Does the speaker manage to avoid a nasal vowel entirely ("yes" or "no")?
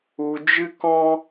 no